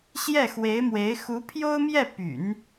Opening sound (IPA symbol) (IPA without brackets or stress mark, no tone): ɕ